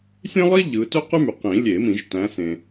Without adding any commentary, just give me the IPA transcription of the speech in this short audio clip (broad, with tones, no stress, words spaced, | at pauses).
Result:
sʲẽ˥lˠi˥ ʎɯ˨˦ tø˥qy˥my˨ qĩ˨˩˦lʲe˨˩˦mĩ˨˩˦ʒ tæ̃˨˦sẽ˨